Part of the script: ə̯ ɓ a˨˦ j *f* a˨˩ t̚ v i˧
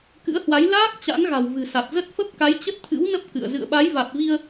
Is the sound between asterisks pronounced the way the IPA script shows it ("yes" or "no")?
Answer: no